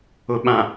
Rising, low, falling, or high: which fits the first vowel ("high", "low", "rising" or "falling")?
low